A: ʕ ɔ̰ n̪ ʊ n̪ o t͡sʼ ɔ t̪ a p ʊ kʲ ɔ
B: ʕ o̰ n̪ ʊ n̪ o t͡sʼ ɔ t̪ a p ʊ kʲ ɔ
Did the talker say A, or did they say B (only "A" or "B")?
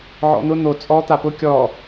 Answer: A